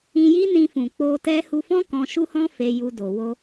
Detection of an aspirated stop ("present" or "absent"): absent